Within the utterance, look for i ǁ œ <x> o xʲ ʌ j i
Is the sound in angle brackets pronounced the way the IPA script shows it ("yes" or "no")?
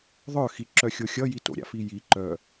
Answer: no